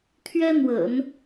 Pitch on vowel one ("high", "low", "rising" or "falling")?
high